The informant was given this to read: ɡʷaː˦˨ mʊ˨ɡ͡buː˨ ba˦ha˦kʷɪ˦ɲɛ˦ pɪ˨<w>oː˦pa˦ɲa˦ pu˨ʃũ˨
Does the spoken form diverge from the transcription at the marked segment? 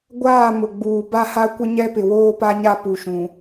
no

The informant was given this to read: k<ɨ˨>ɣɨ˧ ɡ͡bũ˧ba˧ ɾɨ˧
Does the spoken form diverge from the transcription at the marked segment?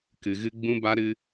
no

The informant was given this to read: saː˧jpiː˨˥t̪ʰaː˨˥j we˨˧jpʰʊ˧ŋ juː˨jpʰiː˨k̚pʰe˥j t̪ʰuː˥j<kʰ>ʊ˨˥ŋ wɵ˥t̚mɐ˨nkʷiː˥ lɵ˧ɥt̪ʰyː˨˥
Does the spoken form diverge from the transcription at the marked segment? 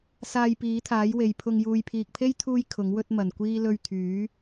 no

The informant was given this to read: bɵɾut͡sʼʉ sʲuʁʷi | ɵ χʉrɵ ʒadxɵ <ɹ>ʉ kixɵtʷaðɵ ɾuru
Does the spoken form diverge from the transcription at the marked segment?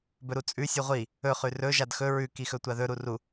no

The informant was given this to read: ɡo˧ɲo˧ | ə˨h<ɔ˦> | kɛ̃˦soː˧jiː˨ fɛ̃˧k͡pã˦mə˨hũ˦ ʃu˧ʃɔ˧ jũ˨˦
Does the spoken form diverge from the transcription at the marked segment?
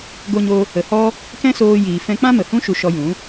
no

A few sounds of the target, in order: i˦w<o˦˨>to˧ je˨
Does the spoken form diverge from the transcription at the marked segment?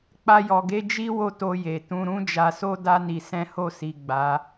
no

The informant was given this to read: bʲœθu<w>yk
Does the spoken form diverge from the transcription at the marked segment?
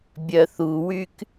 no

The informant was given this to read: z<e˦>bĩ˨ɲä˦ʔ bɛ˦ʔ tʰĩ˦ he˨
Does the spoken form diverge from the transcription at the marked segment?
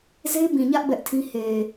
no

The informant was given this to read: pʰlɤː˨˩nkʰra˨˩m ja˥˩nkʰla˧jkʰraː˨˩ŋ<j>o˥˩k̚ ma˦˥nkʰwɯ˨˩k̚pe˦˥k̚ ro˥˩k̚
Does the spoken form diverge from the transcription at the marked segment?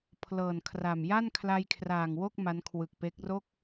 yes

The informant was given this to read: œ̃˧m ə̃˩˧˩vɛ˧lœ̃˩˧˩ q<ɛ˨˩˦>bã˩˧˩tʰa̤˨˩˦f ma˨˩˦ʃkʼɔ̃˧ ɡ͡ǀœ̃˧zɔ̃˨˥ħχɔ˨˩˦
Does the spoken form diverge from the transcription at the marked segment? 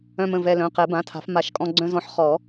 no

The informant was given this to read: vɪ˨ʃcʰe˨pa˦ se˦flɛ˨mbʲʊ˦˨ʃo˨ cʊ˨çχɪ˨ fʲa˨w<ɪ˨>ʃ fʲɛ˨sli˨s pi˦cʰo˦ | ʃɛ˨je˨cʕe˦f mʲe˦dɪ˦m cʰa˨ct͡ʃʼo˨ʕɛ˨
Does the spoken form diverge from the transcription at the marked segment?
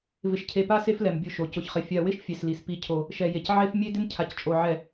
yes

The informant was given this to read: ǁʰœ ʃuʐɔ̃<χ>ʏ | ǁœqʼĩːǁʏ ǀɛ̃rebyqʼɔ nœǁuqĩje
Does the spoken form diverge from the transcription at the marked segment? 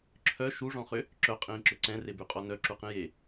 no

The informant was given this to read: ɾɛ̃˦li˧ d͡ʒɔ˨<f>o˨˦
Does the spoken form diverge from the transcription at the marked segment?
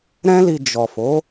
no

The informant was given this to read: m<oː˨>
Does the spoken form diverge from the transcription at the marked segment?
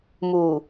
yes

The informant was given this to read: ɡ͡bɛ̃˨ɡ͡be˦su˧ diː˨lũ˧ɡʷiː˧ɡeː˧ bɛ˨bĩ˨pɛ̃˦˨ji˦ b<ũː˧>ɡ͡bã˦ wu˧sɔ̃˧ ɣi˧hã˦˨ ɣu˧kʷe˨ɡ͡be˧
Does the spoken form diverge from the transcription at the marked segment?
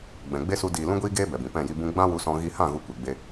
yes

